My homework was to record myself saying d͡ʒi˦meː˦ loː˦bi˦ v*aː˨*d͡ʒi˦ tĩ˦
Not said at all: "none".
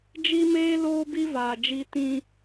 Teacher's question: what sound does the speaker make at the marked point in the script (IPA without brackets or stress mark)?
aː˨